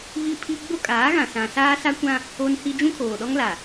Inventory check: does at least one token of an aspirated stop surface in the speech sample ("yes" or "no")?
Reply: yes